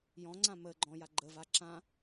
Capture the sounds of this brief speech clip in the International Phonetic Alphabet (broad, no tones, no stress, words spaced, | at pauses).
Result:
jɔ̃ŋ͡ǀã mə ɡ͡ǃɔ̃ja ɡ͡ǃəva ǁã